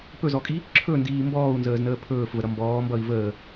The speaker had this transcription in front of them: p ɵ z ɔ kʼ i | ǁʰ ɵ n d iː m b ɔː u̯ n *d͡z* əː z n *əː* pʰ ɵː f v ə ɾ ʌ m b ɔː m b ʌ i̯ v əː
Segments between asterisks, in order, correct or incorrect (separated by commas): incorrect, correct